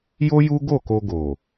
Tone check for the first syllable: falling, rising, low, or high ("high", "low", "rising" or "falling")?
high